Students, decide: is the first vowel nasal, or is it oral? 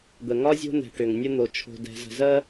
oral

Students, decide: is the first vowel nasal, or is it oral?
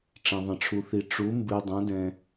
nasal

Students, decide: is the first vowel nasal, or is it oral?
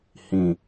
nasal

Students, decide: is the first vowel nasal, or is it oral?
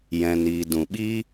nasal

